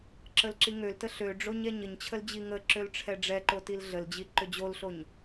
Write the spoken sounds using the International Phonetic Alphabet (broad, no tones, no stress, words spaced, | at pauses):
ǁəlǁiŋøltə ɬøɖ͡ʐoɲ ɛɲəɲt͡ɕʰəl d͡ʑiŋəǁøl ʈ͡ʂʰɛɖ͡ʐɛǃo tilɮəld͡ʑi ǃʏd͡ʑolɬoɲ